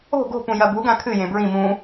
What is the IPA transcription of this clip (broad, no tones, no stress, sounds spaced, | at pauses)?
o̤ ɡ o̤ p ũ j ɐ b u ɡ ã kʰ ɨ j ẽ b ɹ ĩ m ũ